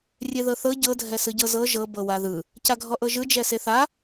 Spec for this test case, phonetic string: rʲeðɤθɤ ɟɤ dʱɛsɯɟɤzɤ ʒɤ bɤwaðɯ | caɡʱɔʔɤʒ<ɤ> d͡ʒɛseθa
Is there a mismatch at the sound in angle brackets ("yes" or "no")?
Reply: yes